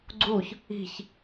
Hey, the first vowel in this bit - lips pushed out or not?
yes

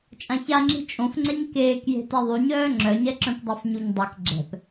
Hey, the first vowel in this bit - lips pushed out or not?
no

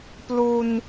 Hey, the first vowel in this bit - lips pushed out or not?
yes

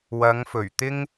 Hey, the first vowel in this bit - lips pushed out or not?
no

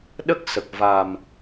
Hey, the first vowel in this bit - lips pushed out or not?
no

